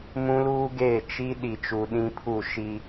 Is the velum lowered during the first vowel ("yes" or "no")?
yes